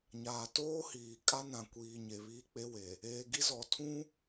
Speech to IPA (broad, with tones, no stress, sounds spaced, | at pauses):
ɲ aː˨ t oː˦ h iː˨ kʼ a˦ n ã˨ kʷ iː˨ ɲ e˨ β iː˦ k͡p e˦ w e˨ | eː˨ ɡ i˦ z ɔ˨ tʰ ũ˦